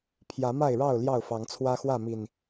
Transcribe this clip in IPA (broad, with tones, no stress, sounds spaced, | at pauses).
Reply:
pʰ j ä˨˦ m a˥˨ ɪ̯ ɻ ɑ˥˨ ʊ̯ l j ɑ˥˨ ʊ̯ f ɑ˨˦ ŋ t͡sʰ w ä˦ x w ä˥˨ m i˨˩ n